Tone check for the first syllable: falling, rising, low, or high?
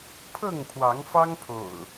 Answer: falling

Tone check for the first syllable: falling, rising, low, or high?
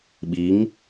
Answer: rising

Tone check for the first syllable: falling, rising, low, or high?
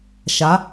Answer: rising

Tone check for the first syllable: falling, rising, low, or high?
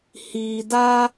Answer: low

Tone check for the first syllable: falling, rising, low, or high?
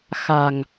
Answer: low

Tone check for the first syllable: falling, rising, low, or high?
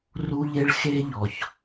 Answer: high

